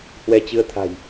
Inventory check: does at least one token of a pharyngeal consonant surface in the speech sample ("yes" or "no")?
no